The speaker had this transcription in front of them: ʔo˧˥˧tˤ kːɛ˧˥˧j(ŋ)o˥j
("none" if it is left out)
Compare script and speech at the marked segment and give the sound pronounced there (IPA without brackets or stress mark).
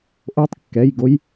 ɡ